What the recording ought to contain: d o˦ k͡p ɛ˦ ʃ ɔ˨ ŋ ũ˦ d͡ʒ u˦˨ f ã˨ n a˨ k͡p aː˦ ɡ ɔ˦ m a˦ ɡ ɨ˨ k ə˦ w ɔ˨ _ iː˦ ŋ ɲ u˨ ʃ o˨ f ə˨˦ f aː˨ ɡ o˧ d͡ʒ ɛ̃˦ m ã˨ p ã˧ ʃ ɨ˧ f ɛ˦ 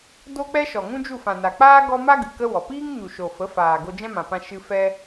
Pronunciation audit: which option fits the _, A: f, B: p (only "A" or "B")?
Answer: B